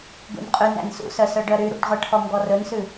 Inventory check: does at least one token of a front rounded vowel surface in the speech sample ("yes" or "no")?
yes